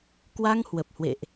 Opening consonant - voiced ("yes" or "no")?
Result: no